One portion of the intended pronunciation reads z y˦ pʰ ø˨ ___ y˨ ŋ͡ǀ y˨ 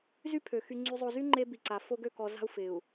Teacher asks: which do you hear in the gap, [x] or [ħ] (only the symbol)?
x